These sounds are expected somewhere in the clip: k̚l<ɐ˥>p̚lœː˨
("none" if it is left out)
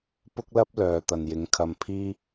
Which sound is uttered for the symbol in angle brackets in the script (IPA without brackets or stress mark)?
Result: ɐ˥